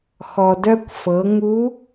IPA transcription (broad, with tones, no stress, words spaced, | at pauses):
xɔ˩dœ˧kʷ fɤ˩˧ ŋu˧˥